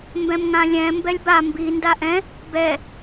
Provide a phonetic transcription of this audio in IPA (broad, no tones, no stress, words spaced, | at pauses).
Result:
mbɛ̃mŋãlʲɛ̃ mbɛlʲba mbi ndaʔɛ̃ | bɛ